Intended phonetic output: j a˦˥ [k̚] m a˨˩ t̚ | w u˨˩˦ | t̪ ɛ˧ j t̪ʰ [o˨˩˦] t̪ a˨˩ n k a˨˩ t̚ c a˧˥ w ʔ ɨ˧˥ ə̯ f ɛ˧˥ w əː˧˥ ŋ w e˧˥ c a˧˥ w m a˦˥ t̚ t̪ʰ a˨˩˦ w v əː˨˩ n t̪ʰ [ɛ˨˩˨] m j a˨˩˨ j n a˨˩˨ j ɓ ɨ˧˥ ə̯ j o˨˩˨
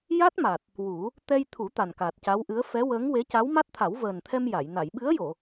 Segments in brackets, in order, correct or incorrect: incorrect: t̚, incorrect: u˨˩˦, incorrect: ɛ˧

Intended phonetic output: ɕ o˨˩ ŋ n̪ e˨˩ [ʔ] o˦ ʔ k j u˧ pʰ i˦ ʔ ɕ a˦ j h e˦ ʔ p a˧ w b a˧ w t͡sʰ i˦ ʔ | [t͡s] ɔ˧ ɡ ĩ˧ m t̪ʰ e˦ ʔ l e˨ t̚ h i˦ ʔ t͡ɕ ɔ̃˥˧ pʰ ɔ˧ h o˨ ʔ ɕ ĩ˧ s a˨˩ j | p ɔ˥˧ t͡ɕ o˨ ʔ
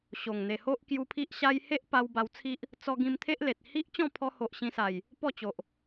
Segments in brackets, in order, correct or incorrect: incorrect: h, correct

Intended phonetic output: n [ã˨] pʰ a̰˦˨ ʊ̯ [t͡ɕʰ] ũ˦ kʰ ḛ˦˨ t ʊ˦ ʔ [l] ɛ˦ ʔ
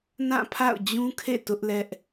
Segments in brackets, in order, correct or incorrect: incorrect: ã˦˨, incorrect: d͡ʑ, correct

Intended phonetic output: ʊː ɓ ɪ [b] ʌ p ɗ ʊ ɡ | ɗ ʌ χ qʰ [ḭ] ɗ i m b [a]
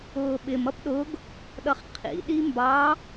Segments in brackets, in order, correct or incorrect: incorrect: m, correct, incorrect: ɑ

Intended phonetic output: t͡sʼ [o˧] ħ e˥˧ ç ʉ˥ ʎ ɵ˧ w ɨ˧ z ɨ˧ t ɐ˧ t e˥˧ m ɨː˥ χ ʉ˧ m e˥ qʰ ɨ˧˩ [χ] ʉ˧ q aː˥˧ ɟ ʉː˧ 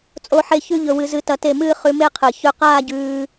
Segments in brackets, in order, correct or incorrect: incorrect: o˥˧, incorrect: ç

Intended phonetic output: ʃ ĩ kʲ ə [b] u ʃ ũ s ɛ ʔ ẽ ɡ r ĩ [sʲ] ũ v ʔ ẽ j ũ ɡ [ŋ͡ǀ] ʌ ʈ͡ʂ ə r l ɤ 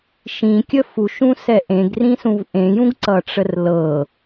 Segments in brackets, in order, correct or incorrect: incorrect: f, incorrect: s, incorrect: ǀ

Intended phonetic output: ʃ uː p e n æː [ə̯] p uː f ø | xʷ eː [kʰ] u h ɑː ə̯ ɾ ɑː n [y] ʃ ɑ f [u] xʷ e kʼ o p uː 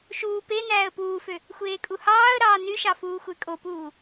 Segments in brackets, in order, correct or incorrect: correct, incorrect: kʼ, correct, incorrect: uː

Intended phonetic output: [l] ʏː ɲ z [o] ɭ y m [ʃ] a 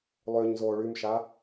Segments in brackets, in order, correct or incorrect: incorrect: lˠ, incorrect: oː, correct

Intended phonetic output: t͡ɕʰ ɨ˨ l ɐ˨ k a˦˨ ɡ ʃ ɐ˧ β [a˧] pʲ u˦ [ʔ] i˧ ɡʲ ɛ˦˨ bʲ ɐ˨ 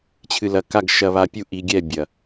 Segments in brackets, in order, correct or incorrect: correct, correct

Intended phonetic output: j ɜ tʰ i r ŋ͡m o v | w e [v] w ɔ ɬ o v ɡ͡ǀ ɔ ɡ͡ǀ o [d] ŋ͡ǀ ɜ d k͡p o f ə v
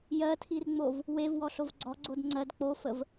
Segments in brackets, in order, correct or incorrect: correct, correct

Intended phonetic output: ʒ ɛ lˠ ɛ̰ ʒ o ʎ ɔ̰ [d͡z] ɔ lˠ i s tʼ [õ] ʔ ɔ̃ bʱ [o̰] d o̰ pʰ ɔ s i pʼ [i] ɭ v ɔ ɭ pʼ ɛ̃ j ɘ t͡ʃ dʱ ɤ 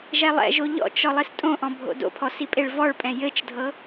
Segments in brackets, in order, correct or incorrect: incorrect: t͡ʃ, correct, correct, incorrect: e

